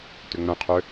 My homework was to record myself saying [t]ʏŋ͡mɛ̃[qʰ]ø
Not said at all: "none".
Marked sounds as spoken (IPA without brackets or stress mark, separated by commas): t, qʰ